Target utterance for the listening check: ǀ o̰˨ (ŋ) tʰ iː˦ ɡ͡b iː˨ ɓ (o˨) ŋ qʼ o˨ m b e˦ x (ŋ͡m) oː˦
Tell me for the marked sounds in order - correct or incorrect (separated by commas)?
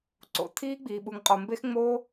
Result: incorrect, incorrect, correct